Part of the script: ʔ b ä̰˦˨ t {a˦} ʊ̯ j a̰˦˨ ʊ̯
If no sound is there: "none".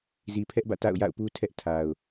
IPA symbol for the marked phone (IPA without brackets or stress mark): a̰˦˨